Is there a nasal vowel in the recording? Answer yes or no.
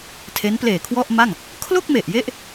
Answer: no